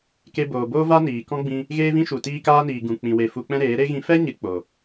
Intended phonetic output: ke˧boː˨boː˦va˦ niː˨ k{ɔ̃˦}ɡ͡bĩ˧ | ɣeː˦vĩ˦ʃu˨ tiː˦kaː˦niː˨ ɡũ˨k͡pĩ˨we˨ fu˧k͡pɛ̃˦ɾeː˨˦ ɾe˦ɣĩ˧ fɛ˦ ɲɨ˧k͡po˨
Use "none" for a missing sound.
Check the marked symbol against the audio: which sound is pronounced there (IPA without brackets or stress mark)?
ɔ̃˦